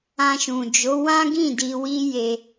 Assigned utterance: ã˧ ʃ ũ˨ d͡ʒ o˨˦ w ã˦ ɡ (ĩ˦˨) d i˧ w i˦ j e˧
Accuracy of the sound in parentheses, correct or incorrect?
correct